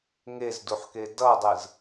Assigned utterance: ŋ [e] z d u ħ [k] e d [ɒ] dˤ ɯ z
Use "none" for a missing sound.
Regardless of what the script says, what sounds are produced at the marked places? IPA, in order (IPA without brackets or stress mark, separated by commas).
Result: e, k, ʌ